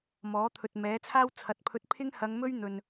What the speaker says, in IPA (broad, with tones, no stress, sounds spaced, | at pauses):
m ɔː˨˥ t̪ʰ ɵ˨ t̚ m ɛː˨˥ t͡sʰ aː˥ w t͡sʰ ɐ˨ t̚ pʰ ɵ˧ t̚ pʰ ɪ˥ ŋ h ɐ˨˧ ŋ m ɵ˥ ɥ n̪ ɵ˨ n